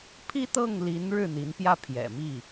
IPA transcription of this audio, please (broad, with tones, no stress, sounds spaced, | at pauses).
pʰ i˥ t̪ ɤ˥˩ ŋ l i˧˥ n ɻ ɻ̩˥˩ n̪ i˧˥ n p j ä˥˩ pʰ j ɛ̰˨˩ m i˥˩